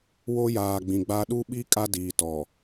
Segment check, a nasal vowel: present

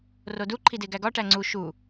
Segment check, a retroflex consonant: present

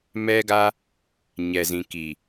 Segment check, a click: absent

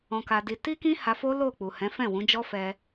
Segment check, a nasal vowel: present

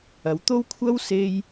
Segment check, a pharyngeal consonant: absent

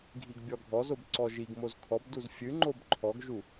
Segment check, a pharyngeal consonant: absent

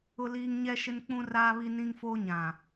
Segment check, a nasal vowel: present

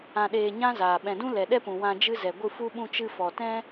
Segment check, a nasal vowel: present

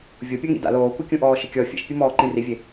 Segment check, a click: present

